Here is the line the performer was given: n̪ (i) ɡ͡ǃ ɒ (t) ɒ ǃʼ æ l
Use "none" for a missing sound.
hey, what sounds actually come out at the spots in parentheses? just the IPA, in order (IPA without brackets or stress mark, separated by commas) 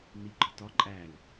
i, t